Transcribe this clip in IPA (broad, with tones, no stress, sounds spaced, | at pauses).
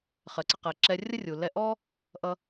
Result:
χ ɜ˩ ǀ ə˧ q ɜ˩ ǁ ɛ˧ rʲ ə˥ rʲ u˩ l ɛ˧ ʔ ɔ˥ | ʔ ʌ˧